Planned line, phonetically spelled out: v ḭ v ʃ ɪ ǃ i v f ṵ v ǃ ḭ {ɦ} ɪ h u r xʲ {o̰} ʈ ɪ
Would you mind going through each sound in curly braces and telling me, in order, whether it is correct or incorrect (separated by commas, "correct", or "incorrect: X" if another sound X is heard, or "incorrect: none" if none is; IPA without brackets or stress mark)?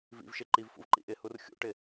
incorrect: ʔ, incorrect: ṵ